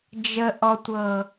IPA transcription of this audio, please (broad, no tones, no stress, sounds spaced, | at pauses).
d͡ʒ ə ʔ ɔ tʷ ɤ